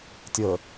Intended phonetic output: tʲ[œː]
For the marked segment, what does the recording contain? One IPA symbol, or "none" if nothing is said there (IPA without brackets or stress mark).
əː